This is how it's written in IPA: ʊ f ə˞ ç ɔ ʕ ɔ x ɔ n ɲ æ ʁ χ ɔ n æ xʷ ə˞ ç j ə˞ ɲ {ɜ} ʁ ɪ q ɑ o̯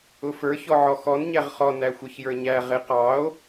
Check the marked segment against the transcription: incorrect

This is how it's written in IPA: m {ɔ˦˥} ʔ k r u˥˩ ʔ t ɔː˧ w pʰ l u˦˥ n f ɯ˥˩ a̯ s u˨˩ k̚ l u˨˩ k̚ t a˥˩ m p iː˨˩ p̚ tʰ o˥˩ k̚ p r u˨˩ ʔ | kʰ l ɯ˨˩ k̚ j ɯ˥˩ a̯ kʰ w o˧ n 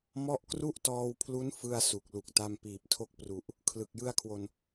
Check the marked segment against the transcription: correct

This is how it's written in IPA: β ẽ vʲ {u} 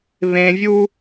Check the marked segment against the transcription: correct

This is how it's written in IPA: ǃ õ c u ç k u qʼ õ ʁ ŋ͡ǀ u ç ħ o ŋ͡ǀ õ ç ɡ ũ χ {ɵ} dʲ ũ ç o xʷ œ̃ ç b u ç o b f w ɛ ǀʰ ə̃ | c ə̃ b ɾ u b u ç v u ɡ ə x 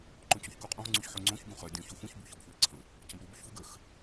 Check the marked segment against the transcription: incorrect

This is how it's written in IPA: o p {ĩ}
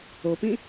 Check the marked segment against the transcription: correct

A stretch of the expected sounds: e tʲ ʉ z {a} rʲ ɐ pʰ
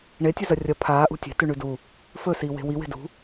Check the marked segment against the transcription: incorrect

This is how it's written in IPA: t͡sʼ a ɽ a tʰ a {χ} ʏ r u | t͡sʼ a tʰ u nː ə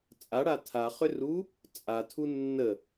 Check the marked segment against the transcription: correct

